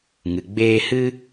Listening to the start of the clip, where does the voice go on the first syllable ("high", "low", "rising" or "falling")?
low